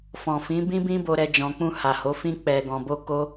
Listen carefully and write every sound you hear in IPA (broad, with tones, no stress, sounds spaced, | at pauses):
f ɔ̃˨ f ĩ˨˦ b ĩ˦ b ĩ˦ b o˧ ɾ ɛ˧ d͡ʒ ɔ̃˨ k͡p ũ˧ h a˨ h o˨˦ f ĩ˧ k͡p ɛ˨ ɡ ɔ̃˨ b o˧ k o˦